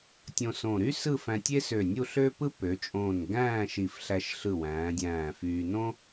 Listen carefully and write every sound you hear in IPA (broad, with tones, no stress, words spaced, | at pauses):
tʲõ˧sõ˧˩ ɾy˥ sɯ˥˧fæ̃˧ tʲe˥sø˧˩nʲu˥˧ ɬø˥pɯ˥ pø˩˧t͡ʃʼõː˧˩n ɡæ̃ː˥˧ʃi˧˩fɬæ˧ʃɬɯ˧˩ wæ̃ː˩˧dʲæ̃ː˧˩fyː˧ nõ˥